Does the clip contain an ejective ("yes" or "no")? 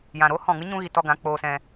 no